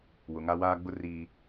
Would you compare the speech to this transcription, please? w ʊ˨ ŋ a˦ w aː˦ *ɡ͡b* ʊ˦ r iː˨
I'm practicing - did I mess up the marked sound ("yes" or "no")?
no